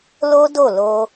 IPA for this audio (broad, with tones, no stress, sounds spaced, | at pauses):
l o˦ d o˦˨ l o˧